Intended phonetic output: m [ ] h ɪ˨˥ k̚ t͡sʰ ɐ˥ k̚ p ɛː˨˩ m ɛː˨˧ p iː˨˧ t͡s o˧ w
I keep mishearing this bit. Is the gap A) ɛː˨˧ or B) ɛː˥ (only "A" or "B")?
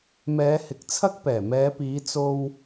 A